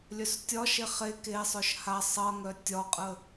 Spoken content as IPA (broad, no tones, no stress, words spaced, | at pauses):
lʲœstʲɒ ʃeχe ke sˤœʃha sˤʌŋœ tʲɒqʼə